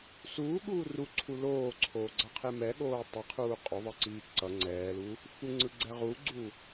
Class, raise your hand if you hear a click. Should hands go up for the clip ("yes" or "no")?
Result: yes